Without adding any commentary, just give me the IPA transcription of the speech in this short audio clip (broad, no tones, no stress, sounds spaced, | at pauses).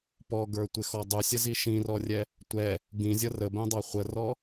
p ɔ ɡ ə˞ tʷ ɪ x ɔ dˤ u sʲ ə z i ʃ ĩ r ɔ rʲ ɛ | tʷ ɛ | ɡ ĩ zʲ ʌ r ə b ɛ̃ dˤ ɑ χʷ ə r ɔ